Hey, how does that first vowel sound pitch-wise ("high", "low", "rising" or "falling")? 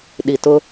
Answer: low